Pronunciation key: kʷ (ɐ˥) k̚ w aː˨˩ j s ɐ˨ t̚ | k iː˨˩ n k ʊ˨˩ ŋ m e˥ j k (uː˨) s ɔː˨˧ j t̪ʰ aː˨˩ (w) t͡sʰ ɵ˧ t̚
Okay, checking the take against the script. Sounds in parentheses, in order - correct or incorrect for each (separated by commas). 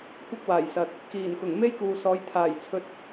correct, correct, incorrect